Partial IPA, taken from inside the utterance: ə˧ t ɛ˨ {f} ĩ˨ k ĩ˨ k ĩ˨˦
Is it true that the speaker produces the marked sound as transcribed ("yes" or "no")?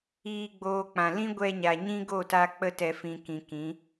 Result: yes